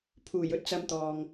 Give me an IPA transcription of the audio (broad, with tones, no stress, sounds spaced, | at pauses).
pʰ uː˨˩ j ɵ˥ t̚ t͡s ɐ˧ m t̪ ɔː˨ ŋ